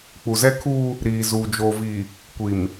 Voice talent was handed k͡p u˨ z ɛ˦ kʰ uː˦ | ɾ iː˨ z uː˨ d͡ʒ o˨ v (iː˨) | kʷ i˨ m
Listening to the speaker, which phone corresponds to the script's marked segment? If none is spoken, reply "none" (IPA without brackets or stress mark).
i˨